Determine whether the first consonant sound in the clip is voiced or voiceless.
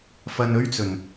voiceless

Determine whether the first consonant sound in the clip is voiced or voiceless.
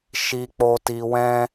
voiceless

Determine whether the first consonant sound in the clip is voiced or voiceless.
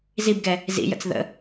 voiced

